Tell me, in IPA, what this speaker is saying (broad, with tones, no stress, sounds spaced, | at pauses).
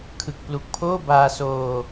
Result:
kʰ ɯ˨˩ k̚ p l u˨˩ k̚ pʰ oː˥˩ b aː˧ s oː˧